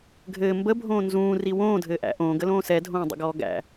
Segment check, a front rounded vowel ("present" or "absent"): absent